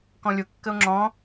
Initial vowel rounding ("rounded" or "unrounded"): rounded